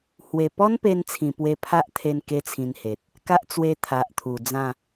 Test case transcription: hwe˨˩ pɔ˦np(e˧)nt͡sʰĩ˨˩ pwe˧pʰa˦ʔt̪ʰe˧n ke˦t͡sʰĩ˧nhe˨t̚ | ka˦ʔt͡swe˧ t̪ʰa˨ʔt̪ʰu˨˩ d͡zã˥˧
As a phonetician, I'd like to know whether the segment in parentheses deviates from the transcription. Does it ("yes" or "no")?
no